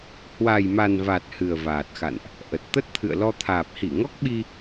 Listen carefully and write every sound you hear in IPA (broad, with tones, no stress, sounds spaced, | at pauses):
h w a˨˩ j m a˨˩ n v a˨˩ t̚ h ɨ˨˩ ə̯ v aː˨˩ t̚ x a̰˧˨ n ʔ | ʔ ə˨˩ t̚ t̪ ə˦˥ t̚ t̪ʰ ɨ̰˧˨ ə̯ l ɔ˧ t̪ʰ aː˨˩ p̚ h i˧˩ ŋ ɔ˦˥ k̚ ɓ i˧